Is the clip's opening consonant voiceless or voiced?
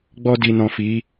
voiced